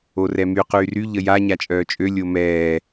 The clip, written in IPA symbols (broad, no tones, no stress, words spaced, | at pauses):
orɛmy qyːry ʎəja ɲat͡ʃʼœːt͡ʃʼø lʲomɛː